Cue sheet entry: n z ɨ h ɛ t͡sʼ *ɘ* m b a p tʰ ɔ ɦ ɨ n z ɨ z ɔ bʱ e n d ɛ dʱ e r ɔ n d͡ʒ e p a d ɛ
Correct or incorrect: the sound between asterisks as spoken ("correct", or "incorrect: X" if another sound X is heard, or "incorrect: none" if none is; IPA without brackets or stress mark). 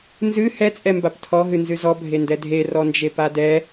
incorrect: ɛ